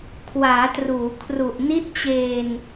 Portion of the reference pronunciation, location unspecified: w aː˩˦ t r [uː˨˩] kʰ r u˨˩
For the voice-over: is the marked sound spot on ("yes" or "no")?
no